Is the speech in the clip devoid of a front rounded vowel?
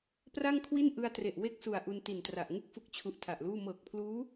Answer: yes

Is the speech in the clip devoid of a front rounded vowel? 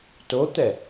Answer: yes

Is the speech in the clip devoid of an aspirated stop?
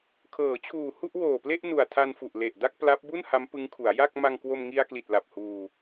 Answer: no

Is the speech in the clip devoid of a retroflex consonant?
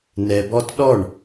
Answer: no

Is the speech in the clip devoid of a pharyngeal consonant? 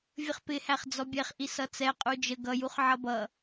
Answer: no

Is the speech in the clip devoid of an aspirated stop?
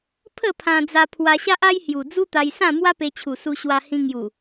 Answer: no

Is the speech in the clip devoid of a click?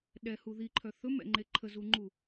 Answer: no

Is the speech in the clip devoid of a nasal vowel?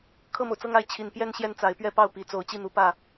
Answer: yes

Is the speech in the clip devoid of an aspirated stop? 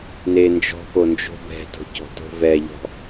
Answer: yes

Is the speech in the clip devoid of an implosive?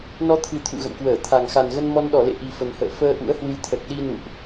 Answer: no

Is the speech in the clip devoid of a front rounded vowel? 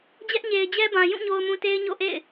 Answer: yes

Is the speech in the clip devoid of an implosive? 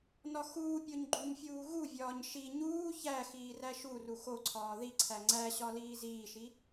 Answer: yes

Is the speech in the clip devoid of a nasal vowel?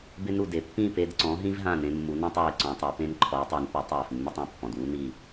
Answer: no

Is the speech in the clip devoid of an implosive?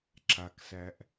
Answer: yes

